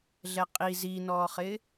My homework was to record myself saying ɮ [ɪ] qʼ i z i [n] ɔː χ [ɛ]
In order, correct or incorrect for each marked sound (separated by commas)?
incorrect, correct, incorrect